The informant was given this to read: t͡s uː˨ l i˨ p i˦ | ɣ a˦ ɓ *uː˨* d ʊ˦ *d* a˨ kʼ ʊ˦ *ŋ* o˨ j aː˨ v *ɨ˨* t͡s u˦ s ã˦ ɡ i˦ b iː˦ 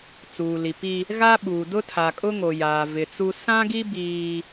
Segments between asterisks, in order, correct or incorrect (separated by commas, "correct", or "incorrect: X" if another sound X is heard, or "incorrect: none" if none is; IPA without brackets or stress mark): correct, incorrect: tʰ, correct, incorrect: ɪ˨